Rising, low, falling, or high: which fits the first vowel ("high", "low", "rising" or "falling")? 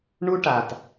high